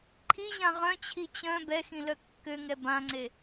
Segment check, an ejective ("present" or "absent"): absent